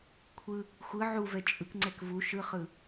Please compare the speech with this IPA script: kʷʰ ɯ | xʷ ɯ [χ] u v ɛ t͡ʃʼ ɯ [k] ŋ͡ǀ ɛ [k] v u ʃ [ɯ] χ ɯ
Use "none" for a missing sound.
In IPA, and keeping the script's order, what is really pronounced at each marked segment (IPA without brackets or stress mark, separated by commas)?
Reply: ʕ, k, k, ɯ